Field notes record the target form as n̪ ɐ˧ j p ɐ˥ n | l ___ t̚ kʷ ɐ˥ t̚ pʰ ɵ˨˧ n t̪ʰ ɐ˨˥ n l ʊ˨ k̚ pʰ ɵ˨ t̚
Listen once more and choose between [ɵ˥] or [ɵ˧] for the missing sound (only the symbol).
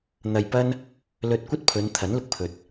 ɵ˧